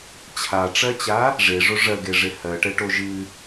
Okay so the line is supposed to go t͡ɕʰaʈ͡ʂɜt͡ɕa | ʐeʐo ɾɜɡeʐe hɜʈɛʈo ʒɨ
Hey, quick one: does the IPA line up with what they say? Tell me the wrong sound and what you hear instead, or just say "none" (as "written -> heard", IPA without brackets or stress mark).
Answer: ɾ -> ʐ